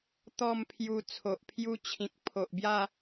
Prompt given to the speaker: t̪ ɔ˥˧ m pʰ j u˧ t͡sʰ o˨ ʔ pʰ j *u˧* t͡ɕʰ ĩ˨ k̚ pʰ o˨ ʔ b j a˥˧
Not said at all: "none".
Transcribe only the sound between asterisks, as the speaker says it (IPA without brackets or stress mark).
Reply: u˧